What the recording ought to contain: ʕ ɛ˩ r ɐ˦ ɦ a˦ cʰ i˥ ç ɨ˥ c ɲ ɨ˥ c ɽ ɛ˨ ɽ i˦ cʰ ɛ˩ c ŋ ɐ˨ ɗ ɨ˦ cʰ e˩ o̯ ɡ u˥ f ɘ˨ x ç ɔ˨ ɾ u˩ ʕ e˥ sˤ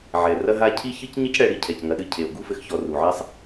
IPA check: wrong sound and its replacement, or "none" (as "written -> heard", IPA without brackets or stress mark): ɾ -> r